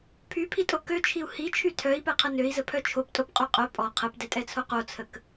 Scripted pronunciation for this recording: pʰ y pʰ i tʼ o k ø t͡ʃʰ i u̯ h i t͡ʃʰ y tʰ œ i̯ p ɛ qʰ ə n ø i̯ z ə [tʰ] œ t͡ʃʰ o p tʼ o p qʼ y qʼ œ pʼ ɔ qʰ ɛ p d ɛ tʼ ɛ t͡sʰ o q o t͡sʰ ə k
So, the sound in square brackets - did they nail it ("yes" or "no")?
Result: no